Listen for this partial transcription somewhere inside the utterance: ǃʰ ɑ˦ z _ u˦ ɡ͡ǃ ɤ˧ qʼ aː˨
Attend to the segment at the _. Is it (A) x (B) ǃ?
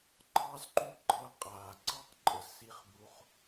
B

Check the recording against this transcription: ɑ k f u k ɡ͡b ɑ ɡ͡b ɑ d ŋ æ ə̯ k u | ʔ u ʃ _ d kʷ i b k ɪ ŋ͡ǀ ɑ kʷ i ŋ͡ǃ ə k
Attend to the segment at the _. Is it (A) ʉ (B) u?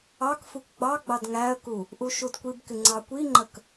B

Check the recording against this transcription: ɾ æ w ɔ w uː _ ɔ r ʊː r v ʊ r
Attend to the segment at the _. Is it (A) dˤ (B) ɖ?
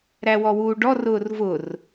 B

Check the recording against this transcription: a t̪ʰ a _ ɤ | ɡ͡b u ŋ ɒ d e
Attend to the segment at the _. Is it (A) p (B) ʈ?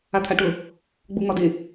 B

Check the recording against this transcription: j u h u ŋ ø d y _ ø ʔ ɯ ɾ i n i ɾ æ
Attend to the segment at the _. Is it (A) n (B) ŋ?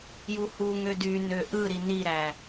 A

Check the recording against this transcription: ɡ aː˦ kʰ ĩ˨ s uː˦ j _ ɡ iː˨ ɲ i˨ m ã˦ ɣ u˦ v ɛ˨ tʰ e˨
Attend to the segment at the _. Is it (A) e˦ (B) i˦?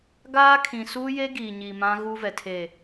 A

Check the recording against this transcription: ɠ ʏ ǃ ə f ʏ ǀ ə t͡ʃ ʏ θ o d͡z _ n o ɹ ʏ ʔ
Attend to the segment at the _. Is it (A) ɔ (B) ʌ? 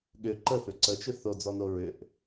A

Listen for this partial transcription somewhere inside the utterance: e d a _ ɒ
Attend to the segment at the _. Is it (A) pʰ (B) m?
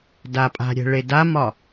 B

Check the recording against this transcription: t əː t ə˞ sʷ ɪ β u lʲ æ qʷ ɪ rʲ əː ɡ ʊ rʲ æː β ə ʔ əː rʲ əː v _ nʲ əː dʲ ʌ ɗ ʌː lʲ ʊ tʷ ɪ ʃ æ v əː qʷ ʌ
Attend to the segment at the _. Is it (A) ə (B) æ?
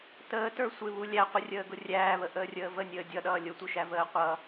A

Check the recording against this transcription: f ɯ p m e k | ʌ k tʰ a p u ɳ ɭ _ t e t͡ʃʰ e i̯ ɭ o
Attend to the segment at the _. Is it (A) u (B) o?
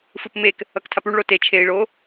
B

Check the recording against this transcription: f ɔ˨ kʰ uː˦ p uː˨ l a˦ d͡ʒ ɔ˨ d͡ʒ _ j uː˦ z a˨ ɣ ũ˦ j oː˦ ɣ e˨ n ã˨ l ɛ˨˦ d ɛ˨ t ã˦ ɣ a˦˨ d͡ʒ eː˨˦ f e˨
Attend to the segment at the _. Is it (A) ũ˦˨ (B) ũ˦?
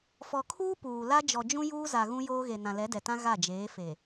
B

